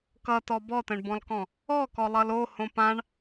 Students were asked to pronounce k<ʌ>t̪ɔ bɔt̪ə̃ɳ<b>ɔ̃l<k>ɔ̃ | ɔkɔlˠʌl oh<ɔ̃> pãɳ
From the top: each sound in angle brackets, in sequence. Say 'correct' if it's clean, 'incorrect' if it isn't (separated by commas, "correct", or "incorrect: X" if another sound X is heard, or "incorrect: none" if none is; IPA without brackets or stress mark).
correct, correct, correct, incorrect: õ